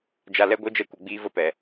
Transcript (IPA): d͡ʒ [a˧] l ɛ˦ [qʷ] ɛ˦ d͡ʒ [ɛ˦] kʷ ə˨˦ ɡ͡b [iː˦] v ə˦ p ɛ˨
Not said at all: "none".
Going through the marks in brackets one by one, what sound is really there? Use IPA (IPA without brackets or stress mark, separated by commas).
a˧, ɡʷ, ɛ˦, iː˦